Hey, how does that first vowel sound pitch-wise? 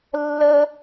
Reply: high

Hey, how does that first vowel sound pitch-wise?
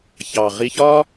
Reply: low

